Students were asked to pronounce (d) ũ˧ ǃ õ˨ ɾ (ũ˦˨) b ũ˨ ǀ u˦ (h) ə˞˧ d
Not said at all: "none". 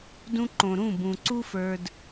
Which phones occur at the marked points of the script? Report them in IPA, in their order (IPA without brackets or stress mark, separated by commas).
d, ũ˦˨, f